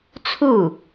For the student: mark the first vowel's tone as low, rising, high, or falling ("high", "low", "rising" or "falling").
falling